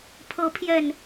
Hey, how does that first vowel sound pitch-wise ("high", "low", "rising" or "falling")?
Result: rising